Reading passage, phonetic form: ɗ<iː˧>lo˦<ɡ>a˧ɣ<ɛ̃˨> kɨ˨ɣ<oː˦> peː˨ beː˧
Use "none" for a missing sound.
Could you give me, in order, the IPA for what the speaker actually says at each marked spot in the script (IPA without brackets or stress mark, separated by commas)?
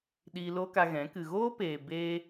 iː˧, k, ɛ̃˨˦, oː˦